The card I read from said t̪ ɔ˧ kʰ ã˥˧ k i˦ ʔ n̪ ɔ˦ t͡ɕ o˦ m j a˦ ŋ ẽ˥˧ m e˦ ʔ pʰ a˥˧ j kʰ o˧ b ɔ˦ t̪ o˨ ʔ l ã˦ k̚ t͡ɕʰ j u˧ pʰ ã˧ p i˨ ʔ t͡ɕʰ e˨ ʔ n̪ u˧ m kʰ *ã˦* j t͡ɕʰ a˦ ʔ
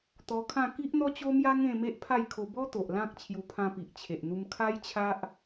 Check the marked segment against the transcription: incorrect: a˦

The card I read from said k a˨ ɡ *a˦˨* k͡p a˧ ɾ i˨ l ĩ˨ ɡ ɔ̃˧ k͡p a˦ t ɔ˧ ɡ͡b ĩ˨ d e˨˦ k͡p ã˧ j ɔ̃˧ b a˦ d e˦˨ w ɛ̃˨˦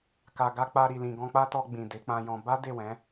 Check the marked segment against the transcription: incorrect: a˧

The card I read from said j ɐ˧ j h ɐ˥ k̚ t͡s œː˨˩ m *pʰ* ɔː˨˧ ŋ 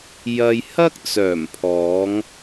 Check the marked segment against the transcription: correct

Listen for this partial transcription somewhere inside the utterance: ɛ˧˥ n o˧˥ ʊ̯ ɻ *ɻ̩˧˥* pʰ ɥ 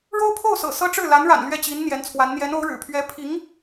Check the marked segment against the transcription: incorrect: ɻ̩˨˩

